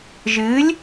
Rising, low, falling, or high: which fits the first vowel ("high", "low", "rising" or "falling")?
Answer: rising